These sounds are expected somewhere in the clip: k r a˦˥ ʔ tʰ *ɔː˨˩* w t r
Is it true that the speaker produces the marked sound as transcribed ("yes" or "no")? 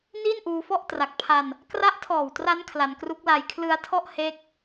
yes